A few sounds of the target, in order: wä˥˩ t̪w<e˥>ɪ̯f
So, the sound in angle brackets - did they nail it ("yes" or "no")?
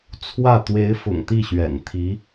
no